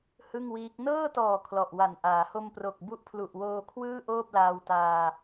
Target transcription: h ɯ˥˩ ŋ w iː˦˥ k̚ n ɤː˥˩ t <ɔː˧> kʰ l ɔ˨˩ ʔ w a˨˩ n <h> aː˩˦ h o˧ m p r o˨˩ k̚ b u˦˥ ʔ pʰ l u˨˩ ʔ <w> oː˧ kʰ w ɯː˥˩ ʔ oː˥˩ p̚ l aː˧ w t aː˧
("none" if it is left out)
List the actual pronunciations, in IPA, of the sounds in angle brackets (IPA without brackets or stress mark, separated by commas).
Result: ɔː˨˩, ʔ, w